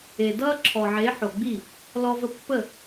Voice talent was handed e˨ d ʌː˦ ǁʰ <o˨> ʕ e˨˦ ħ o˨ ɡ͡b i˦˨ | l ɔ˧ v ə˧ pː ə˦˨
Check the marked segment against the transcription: incorrect: ɔ˨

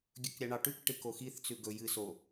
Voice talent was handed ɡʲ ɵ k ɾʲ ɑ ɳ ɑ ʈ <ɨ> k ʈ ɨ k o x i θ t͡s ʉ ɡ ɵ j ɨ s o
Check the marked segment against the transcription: incorrect: ʉ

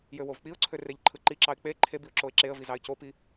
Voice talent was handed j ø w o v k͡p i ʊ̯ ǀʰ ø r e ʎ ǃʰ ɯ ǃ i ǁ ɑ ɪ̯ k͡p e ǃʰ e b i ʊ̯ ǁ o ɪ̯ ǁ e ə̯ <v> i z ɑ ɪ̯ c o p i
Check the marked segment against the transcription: correct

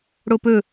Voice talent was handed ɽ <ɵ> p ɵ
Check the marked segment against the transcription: incorrect: o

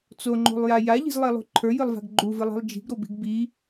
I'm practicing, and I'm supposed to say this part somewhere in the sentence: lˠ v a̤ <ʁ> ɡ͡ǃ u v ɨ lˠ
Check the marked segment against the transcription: incorrect: ɡ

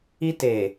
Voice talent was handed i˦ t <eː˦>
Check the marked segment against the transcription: incorrect: eː˨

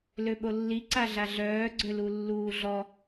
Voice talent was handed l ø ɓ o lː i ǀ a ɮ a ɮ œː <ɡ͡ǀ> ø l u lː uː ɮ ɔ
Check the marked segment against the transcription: correct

